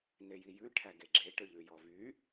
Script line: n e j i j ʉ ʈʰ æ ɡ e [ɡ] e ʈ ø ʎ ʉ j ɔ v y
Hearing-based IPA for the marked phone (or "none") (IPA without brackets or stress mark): ɡ͡ǁ